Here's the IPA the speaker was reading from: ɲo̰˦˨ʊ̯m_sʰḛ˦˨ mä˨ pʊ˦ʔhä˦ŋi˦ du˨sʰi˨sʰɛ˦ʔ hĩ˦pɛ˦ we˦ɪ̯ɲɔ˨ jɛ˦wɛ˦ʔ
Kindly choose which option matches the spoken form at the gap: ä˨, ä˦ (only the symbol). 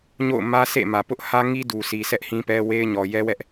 ä˦